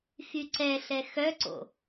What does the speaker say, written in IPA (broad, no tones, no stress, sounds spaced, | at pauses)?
x y ǀ ɛ ɬ ɛ x œ ǀ o̰